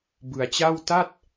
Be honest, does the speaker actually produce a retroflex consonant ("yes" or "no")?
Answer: no